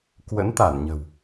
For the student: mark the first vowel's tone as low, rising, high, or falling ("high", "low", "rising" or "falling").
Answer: rising